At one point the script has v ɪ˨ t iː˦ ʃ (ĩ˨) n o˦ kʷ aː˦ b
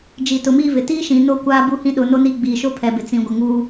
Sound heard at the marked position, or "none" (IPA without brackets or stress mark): ĩ˨